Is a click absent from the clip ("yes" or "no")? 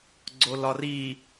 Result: no